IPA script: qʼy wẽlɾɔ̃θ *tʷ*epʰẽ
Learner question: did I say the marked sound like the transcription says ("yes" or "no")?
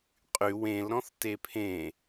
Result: no